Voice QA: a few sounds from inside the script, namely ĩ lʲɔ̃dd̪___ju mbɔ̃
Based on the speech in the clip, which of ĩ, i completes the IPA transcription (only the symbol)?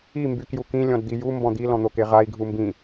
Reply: i